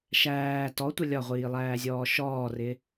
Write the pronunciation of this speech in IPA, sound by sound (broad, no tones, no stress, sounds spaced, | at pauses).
ʃ æː t ɔ tʷ ə lʲ ɒ ʁʷ iː lˠ æː zʲ ɔː ʃ ɔː r ɪ